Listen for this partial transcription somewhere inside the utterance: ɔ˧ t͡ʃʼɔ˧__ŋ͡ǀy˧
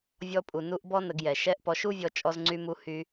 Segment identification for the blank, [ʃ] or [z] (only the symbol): z